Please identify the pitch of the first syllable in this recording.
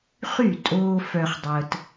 falling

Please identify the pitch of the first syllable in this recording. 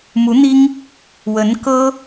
rising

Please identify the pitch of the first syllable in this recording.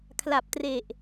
low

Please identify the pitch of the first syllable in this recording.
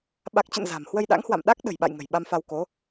low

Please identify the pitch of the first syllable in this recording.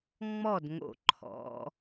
falling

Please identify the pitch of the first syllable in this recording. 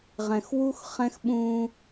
low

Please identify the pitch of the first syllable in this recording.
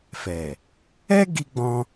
low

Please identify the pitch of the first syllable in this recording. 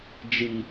low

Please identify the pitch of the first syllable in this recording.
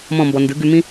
falling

